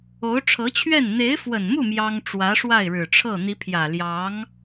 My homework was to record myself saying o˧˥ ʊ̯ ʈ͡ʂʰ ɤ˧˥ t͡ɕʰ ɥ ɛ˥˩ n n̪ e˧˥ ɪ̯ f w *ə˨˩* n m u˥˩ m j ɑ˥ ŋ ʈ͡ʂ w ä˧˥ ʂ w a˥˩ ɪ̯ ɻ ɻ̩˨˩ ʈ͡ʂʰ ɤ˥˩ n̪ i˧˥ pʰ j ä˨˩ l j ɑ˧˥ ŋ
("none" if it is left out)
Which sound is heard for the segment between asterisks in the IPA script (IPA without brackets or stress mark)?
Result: ə˨˩